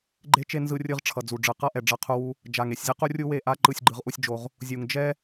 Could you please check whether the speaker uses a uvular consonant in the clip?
yes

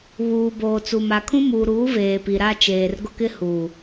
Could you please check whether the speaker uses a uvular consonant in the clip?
no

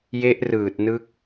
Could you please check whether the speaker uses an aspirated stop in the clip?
no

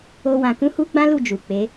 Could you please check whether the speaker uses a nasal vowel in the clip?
yes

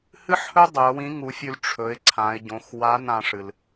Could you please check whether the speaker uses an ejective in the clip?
no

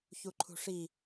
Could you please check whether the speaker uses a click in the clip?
yes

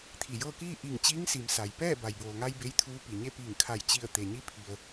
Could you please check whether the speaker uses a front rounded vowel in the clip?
no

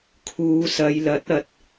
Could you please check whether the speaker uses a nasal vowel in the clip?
no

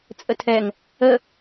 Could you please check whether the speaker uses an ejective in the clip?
yes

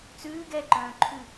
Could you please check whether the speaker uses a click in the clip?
yes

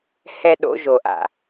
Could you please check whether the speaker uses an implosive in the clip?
yes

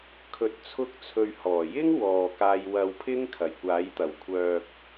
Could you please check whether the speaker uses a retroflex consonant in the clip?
no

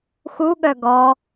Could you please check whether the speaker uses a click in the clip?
no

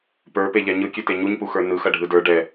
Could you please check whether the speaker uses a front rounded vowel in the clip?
yes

